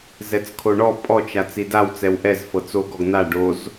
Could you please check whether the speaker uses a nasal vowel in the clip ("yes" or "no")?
no